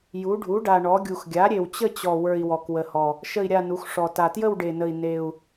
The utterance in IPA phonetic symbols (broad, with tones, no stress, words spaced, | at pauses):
ju˩˥ ɖʱu˩˥ɖa˨˩ ɳɔ˩˥ɡʲu˨˩x ɡʲa˩˥ɾʲe˨˩wt͡ɕə˥˧t͡ɕɔ˨˩ wə˞˨˩i̯ wɔ˨˩kwə˨˩hɔ˨˩ | ʃə˥˧i̯ɾʲa˥˧nu˩˥xʂɔ˨˩ ta˨˩tjə˥˧wɖe˨˩nə˨˩i̯ ne˨˩u̯